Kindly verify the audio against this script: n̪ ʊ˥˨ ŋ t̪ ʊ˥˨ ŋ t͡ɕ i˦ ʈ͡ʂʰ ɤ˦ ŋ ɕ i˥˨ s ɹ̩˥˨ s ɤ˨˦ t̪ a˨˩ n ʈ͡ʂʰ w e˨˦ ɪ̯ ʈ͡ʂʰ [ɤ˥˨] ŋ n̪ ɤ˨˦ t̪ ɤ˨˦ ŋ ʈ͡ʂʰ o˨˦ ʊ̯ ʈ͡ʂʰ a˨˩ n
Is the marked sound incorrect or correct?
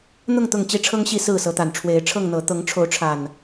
correct